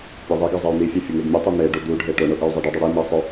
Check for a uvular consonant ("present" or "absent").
absent